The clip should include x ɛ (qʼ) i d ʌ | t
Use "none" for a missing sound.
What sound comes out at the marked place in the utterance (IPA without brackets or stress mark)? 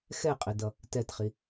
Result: qʼ